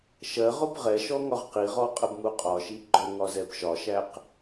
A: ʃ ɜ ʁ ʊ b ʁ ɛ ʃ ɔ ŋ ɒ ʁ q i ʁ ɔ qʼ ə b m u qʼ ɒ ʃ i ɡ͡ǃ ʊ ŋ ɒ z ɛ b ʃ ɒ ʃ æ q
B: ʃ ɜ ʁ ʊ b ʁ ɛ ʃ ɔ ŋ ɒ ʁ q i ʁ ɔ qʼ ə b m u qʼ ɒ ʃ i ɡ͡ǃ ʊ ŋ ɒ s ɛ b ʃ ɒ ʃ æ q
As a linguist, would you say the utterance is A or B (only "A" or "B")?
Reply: A